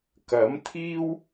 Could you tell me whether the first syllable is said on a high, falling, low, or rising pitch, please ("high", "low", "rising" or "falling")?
rising